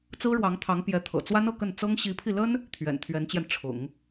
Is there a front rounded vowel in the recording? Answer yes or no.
no